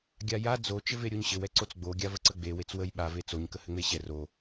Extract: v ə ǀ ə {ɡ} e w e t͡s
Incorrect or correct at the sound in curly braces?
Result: incorrect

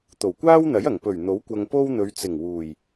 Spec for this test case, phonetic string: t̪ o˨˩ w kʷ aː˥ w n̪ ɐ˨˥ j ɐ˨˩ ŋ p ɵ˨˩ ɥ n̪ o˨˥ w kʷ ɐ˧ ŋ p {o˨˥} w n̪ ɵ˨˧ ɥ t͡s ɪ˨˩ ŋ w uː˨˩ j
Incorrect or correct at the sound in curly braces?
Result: incorrect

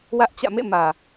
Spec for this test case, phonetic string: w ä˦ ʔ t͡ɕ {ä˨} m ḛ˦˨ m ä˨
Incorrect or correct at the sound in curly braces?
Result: incorrect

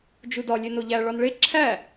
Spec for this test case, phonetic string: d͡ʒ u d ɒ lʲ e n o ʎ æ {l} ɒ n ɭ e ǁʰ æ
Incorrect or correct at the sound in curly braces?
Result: incorrect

